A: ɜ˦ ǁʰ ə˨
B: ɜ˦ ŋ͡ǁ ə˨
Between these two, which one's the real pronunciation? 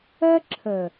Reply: A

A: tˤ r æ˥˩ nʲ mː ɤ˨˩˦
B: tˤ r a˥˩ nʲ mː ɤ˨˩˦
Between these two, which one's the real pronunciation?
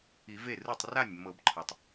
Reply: B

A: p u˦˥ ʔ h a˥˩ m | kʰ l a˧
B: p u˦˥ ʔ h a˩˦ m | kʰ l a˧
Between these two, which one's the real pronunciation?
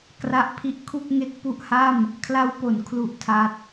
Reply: A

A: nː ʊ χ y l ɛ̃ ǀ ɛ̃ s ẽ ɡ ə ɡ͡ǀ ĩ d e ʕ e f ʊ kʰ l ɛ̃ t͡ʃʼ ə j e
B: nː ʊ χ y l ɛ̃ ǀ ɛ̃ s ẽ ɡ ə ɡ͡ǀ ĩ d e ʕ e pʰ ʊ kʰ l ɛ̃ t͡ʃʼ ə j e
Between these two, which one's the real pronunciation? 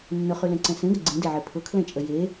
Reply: B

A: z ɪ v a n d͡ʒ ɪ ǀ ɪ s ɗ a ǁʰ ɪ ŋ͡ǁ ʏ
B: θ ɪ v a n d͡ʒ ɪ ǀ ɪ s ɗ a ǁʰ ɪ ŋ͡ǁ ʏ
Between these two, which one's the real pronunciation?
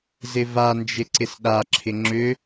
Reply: A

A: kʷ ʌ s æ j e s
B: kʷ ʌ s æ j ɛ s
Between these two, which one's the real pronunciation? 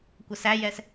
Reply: B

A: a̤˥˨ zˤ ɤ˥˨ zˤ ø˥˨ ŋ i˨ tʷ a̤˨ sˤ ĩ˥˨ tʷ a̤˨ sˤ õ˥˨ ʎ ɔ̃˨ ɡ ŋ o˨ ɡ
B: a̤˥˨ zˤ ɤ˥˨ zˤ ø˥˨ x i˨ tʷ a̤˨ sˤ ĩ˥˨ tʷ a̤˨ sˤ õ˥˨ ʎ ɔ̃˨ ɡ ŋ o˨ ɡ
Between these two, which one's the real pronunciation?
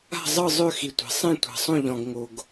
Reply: B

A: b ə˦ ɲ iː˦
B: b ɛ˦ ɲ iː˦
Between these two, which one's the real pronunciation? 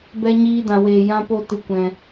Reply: B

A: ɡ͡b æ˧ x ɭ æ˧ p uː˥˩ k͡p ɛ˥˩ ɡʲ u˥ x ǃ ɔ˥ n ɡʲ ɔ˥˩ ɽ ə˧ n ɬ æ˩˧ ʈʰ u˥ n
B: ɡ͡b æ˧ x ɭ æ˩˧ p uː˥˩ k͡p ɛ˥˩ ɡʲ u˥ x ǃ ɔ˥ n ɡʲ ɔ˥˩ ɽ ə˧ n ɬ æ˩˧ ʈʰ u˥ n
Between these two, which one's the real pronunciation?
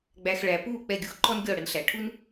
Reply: B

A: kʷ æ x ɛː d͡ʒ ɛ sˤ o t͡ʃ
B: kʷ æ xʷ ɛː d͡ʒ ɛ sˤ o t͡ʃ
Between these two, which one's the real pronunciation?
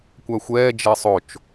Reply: B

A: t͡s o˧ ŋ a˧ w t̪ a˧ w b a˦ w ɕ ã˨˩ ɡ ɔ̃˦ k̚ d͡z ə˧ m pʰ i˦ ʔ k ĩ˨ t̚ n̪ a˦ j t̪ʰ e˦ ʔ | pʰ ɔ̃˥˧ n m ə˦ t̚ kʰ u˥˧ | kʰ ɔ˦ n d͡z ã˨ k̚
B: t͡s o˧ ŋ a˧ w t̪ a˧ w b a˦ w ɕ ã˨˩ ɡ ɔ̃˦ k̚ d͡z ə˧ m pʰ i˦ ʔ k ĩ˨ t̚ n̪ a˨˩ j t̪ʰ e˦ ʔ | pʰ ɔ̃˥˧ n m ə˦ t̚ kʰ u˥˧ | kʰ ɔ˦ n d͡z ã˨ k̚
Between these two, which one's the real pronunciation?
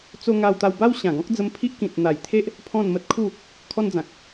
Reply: B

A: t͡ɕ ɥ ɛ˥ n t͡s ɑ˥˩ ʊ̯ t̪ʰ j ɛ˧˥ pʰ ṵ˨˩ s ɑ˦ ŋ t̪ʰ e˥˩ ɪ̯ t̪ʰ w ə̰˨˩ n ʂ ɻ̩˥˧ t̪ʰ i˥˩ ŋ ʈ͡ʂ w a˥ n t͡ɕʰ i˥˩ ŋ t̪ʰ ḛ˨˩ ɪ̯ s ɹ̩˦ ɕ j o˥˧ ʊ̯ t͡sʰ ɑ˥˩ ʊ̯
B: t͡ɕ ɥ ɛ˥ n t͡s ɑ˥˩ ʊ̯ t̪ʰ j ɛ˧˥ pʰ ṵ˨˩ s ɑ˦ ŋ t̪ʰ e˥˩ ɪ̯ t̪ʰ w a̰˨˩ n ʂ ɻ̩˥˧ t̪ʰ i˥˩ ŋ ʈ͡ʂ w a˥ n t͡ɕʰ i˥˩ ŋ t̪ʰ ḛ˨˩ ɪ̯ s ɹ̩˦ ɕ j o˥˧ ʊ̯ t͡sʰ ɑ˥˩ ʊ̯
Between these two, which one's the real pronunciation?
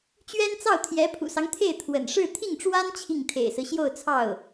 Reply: A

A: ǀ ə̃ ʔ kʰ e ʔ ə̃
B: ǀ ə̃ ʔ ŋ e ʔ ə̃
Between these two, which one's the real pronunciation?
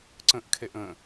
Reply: A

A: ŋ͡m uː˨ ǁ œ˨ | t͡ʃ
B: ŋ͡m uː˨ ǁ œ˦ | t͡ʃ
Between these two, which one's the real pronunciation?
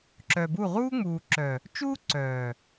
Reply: A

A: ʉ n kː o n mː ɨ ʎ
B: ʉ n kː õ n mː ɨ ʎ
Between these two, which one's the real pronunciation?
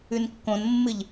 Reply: B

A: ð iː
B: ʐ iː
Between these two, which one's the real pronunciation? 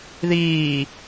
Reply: A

